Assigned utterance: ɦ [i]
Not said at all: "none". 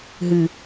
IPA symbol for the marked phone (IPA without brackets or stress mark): ɨ